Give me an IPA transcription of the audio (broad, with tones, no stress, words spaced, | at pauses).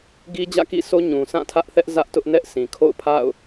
ɡi˦d͡ʑä̰˦˨kḭ˦˨so˦ ɲũ˨ sʰã˦˨tʰä˦ʔθɛ˦ʔ zä˦ʔtʊ˦ʔnɛ˦ʔ sĩ˨ kʰo̰˦˨ʊ̯pʰa̰˦˨ʊ̯